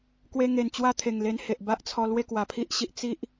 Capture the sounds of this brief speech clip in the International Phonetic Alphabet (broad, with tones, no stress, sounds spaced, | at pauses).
k w e˧ ŋ e˨˩ n t͡ɕ w a˦ t̪ʰ e˨˩ ŋ l e˧ n h e˨ ʔ b a˦ ʔ t͡sʰ ɔ˧ l w e˥˧ k w a˨˩ pʰ i˦ ʔ ɕ i˨ ʔ t͡s i˦ ʔ